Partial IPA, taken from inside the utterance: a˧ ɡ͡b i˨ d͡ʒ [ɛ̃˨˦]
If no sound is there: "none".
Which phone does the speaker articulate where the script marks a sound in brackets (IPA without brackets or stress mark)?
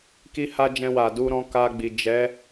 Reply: ɛ˨˦